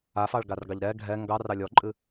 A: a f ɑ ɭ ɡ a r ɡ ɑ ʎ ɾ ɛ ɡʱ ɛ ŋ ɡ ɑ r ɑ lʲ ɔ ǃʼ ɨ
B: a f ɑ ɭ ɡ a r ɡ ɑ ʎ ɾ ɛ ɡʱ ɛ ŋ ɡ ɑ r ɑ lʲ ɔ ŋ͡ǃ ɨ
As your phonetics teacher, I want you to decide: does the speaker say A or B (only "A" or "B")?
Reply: A